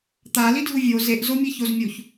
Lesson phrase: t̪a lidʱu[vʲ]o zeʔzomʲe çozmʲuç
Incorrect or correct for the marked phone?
correct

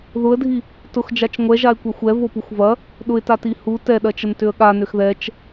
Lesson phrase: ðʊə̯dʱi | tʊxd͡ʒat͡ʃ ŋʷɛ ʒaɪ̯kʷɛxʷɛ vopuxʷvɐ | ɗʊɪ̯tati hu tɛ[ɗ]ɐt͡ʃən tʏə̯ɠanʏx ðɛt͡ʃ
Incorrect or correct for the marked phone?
correct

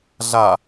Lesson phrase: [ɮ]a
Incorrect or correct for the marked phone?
correct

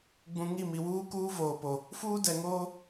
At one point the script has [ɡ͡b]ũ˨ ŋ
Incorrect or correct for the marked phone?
correct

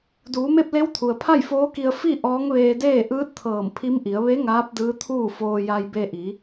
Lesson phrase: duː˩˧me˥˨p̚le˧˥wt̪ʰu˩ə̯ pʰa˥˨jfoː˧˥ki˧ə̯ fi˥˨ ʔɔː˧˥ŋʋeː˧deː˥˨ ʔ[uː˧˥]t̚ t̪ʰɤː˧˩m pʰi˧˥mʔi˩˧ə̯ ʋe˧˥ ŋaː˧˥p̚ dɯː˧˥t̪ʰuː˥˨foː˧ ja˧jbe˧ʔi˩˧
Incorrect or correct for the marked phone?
incorrect: ɯː˧˥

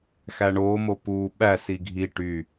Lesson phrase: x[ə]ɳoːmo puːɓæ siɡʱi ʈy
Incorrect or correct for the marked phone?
incorrect: æ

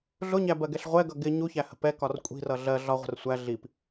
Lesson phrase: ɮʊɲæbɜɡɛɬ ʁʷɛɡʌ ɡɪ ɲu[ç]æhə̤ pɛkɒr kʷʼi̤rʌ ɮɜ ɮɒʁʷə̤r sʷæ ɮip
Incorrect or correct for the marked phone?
correct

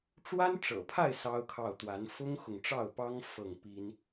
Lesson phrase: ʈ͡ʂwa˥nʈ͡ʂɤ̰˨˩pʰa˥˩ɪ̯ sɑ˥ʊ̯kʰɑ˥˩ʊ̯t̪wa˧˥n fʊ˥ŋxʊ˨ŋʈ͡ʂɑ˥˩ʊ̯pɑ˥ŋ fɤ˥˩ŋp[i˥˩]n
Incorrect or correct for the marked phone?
incorrect: i˥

